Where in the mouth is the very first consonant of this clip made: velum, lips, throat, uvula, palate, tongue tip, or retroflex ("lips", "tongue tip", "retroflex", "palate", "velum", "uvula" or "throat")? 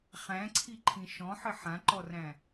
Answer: uvula